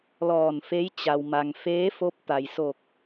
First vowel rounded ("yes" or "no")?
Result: yes